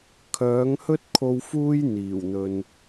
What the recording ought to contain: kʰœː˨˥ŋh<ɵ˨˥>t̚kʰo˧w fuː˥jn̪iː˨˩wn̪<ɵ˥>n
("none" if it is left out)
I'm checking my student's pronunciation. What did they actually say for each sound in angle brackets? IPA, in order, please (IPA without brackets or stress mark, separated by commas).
ɵ˥, ɵ˨